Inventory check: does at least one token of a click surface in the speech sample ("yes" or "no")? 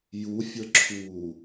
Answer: yes